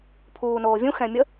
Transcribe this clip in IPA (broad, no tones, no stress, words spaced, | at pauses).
pʰuːnoːvʲũ xɛ̃mʲə